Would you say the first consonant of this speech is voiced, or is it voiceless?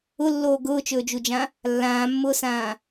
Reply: voiced